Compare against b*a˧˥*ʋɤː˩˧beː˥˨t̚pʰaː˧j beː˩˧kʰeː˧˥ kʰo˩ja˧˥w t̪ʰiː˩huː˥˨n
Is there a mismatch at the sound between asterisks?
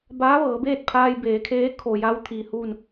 yes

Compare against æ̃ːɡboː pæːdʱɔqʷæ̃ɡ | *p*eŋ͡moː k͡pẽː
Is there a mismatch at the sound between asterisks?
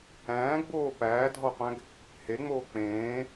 yes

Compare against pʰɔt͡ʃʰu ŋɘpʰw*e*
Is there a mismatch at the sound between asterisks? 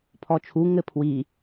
yes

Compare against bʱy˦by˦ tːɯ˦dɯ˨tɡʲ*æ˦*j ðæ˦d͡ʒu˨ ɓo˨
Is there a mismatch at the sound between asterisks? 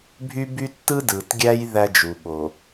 no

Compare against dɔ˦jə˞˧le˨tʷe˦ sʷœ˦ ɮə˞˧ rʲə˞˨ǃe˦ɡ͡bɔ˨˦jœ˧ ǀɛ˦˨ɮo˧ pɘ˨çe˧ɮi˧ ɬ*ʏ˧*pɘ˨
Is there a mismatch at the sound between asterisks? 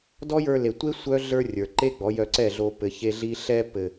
yes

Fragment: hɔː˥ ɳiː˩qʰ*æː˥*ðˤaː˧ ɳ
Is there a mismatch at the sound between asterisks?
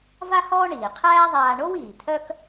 no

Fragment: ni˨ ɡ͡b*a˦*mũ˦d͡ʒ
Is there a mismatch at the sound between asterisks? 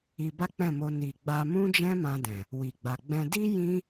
yes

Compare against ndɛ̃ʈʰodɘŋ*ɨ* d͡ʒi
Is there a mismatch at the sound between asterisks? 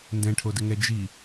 yes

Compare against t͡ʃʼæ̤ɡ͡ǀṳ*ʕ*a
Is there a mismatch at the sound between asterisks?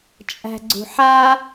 yes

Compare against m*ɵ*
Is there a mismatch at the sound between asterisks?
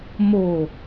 yes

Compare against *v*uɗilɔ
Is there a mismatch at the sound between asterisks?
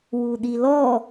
yes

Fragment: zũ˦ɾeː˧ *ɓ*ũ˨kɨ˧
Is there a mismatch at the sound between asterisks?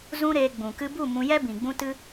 yes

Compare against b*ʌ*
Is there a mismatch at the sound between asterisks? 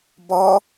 yes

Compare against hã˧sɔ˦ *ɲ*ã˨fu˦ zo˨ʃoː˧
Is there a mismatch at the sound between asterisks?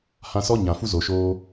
no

